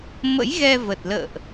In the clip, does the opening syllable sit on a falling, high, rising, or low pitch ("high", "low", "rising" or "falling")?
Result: rising